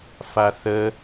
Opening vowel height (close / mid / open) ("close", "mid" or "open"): open